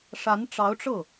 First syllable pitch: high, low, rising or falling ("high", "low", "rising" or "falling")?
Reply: rising